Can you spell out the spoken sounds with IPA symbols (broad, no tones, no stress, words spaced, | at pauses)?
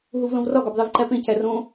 ɦuvlõvrɒ ɡɒbðˤivǃæpẽ cærõ